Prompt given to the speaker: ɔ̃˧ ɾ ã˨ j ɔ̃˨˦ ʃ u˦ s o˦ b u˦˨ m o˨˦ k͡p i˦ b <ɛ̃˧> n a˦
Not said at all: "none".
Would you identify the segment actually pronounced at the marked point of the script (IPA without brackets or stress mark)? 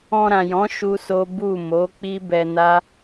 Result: ɛ˧